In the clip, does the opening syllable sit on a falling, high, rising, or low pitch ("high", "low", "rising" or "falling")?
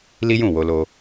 high